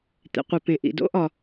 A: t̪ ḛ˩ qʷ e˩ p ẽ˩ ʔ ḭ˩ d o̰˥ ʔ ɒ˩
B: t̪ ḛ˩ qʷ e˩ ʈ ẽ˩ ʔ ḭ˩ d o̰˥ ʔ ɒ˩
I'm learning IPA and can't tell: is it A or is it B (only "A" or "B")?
A